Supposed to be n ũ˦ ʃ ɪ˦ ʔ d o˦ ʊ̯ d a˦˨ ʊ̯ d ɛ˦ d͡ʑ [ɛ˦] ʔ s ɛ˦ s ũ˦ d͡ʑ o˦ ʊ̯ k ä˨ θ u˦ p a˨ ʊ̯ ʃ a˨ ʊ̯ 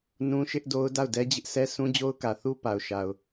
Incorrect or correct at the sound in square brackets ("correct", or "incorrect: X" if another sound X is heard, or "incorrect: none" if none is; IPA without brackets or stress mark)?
incorrect: ɪ˦